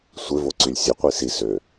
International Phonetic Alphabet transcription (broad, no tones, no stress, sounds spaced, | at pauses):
sʷ ɪ v o ǀ y lʲ sʲ ɤ qʷ i s i s ø